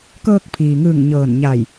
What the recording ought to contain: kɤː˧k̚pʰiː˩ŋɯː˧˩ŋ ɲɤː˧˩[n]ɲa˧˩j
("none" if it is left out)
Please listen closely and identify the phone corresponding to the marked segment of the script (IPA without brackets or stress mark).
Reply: n